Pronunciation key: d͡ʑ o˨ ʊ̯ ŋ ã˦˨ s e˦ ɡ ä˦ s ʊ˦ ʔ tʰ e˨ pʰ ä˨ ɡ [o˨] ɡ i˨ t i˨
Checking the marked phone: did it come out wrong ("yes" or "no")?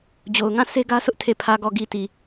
yes